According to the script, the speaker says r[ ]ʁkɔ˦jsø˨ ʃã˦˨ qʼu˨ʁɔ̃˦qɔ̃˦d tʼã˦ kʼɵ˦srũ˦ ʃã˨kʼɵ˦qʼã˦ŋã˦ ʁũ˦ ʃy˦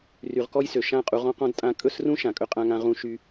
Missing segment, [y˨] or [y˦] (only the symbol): y˨